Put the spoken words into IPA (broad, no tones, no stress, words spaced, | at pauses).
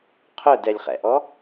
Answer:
qʰœdɛlʲχɛ̰ʔɔ